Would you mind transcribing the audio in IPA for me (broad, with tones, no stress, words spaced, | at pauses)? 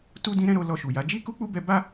tu˦dĩ˦ɾɛ̃˦ɾo˧ lɔ˧ʃu˨ja˨˦ d͡ʒi˦ku˦k͡pu˦bɛ˧ ba˦